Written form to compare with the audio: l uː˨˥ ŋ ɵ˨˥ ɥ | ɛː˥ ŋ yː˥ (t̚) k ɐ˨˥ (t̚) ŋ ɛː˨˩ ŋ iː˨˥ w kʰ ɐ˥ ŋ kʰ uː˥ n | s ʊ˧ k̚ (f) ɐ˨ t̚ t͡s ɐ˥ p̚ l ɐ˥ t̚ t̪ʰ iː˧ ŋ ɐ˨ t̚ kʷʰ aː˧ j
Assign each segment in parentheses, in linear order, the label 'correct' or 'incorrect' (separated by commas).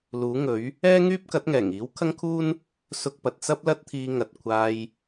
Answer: incorrect, correct, incorrect